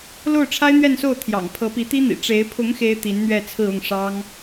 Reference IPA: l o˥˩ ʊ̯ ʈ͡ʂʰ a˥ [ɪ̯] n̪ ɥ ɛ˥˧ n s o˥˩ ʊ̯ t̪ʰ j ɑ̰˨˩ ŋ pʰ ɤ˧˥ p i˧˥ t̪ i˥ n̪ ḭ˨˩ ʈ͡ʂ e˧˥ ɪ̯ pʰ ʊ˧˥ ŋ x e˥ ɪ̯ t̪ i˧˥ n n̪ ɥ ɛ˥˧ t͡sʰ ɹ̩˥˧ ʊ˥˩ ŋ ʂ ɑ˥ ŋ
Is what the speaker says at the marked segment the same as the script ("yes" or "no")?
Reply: yes